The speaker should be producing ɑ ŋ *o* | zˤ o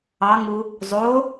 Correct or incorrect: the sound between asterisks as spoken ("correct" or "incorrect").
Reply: incorrect